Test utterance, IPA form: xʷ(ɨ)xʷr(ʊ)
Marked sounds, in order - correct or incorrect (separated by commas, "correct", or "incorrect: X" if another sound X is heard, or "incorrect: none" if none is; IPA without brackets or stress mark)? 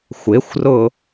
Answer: incorrect: ɪ, correct